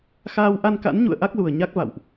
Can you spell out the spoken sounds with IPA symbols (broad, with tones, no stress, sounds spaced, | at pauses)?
x aː˧ w ʔ a˧ n k a̰˧˥ n ɲ ṵ˧˨ ə̯ ʔ a˦˥ k̚ l u˨˩ ə̯ ɲ a˦˥ k̚ v a̰˧˨ w ʔ